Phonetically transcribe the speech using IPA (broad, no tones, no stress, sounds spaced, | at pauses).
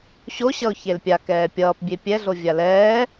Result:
ɕ o ɕ ʌ ʊ̯ ç e l pʲ a k ɛː pʲ ʌː p bʲ e pʲ ɛ ɮ o vʲ a l ɛː